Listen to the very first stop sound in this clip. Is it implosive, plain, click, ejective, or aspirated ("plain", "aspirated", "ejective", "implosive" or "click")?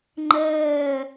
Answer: click